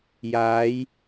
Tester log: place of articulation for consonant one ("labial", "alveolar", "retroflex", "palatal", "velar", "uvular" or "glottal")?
palatal